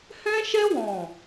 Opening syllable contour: high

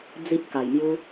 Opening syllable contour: high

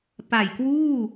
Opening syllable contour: low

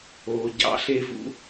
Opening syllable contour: low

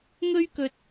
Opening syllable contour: high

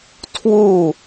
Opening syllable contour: falling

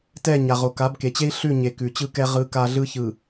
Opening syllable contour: falling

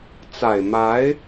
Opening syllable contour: low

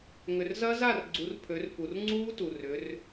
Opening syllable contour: low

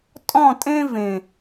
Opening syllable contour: falling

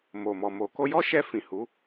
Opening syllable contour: low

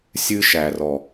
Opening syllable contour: high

